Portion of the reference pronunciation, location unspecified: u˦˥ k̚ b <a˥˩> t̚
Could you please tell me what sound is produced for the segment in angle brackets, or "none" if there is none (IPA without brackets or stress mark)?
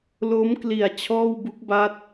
a˥˩